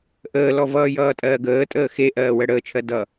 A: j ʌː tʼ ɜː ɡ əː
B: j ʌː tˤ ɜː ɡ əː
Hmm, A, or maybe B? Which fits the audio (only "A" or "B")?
A